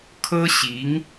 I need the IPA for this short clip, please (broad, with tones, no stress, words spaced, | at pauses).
kʰɤ˥ɕi˧˥ŋ